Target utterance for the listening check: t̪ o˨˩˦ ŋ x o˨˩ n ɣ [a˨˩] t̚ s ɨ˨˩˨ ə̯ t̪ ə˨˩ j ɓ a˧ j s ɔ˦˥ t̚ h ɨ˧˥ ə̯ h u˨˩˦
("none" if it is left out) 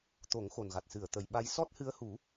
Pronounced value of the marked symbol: a˨˩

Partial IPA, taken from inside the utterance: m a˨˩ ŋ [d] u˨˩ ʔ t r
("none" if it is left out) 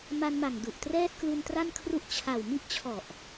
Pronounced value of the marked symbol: d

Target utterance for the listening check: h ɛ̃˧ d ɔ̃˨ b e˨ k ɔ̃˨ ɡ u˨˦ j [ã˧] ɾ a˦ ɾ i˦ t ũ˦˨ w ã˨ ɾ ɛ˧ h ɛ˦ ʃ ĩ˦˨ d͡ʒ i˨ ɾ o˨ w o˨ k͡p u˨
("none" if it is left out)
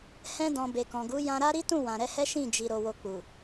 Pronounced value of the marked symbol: ã˧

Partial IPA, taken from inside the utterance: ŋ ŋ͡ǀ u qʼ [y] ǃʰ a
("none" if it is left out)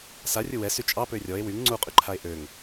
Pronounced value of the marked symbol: y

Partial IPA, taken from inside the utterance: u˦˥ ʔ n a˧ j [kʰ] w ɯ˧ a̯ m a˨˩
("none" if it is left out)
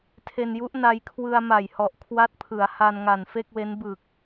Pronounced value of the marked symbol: kʰ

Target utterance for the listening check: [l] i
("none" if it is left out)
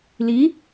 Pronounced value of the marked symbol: l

